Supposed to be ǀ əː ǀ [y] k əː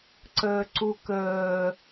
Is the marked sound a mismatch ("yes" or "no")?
yes